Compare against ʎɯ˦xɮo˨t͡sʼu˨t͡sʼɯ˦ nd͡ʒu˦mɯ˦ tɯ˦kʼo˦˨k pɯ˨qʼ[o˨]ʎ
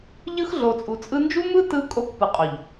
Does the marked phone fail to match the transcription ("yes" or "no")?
no